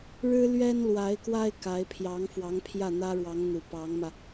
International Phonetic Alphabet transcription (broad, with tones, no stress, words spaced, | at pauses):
ɻɻ̩˥lɥɛ˥n lwa˧˥ɪ̯kwa˥ɪ̯ ka˧˥ɪ̯pʰjɑ˧˥ŋfwɑ˧˥ŋ pʰjä˥˩n̪ä˥ɻwɑ˧˥ŋ n̪u˨˩ pɑ˧˥ŋmä˧